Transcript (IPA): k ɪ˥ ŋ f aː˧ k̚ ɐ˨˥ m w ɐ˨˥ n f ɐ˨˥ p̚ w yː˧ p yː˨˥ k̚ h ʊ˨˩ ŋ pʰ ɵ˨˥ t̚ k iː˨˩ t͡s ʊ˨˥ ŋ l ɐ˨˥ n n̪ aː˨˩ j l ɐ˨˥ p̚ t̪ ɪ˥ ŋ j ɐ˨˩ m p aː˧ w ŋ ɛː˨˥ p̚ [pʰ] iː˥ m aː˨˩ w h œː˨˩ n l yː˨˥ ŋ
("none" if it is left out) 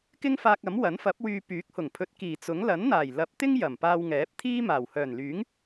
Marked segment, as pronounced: t̪ʰ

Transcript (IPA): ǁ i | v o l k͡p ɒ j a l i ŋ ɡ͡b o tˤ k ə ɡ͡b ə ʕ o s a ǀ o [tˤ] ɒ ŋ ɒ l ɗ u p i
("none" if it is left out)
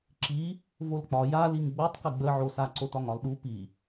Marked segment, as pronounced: t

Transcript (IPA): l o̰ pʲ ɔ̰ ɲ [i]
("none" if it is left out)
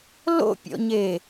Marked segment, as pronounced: e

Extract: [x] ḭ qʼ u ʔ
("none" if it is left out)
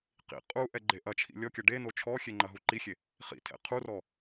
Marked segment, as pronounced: q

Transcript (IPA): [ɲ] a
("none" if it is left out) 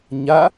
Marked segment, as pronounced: ɲ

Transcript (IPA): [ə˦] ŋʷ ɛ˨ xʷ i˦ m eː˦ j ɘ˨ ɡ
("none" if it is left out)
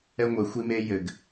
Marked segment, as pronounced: ɛ˦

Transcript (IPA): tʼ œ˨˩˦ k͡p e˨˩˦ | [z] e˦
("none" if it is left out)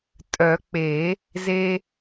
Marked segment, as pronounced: z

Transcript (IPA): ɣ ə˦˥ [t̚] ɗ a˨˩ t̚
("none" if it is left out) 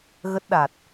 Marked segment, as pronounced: t̚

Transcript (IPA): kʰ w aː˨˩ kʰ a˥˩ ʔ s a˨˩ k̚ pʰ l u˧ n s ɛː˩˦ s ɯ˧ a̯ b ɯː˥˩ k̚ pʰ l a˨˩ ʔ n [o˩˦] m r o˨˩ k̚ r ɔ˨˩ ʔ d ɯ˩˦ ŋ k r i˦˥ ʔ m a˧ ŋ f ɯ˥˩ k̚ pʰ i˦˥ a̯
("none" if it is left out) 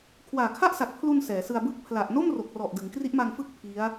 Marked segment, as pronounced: o˥˩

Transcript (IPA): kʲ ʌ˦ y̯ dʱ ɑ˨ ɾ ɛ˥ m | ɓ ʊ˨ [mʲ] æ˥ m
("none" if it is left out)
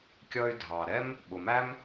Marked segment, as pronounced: m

